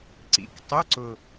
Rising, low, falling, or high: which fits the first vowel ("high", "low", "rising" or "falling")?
low